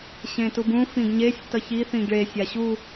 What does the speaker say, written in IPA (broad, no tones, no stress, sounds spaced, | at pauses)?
ɕ ẽ t u b ũ f ĩ ɡ ɲ e sʲ t ʌ ç i θ ĩ ɡ ɭ e sʲ a ɕ u